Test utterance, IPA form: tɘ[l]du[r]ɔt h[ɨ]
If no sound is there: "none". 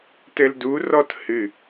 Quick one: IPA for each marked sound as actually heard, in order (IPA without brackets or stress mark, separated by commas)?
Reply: l, r, ɨ